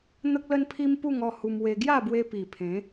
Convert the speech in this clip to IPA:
n̪ ə˦ k̚ l ə˦ n pʰ i˦ m p u˥˧ ŋ ɔ˥˧ h u˧ m w e˧ ɡ j a˥˧ b w e˧ p i˨˩ pʰ ẽ˨˦

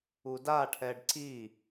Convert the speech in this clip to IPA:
u d a ʈʰ ɛ ɖ ǀ i

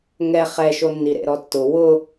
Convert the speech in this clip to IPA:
ŋ ɛ χ ɛ ʃ o nː i ɾ ḛ ɾ ɔ tː ʊ w ʊ

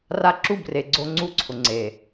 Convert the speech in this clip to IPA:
r a˦ ǁ u˦˨ b r e˨ ɡ͡ǀ o˦ ŋ͡ǀ u˦˨ ǀʰ ʊ˨ ŋ͡ǀ e˨

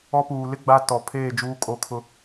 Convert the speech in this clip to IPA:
ɔ˦ p uː˨ l ɪ˦ ɡ͡b a˦ t ɔ˨ pʰ eː˦˨ d͡ʒ uː˦ kʼ o˦ kʰ ʊ˦

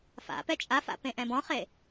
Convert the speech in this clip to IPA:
f a̰ p ɛ t͡ʃʼ a f a̰ p ẽ ʔ ɛ̃ b ɔ̃ χ e

